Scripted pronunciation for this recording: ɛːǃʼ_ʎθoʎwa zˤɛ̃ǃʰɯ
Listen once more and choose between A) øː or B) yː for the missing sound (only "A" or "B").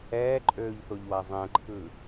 A